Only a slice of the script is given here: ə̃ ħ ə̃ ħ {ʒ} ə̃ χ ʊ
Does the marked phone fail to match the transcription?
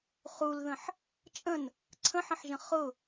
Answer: no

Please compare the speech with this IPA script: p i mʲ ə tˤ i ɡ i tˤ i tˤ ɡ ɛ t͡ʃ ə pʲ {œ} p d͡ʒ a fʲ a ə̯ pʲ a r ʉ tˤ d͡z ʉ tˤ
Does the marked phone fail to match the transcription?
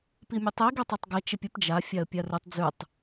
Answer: yes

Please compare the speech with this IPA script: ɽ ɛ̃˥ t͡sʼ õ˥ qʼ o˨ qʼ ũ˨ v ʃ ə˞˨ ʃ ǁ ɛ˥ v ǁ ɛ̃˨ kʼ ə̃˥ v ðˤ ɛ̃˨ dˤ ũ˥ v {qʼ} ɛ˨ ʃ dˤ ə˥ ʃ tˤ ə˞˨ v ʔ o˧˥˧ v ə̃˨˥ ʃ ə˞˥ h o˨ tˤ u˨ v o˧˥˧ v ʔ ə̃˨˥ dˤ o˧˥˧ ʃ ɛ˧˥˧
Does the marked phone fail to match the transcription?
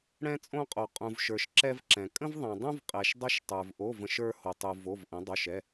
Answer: no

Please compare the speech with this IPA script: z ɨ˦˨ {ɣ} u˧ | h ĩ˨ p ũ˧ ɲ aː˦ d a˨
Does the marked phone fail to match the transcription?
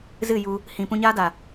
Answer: yes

